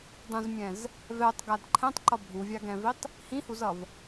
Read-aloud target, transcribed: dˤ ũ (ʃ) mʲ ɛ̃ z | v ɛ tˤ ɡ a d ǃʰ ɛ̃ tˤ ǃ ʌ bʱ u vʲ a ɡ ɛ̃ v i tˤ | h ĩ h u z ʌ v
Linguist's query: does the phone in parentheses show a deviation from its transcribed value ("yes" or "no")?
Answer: yes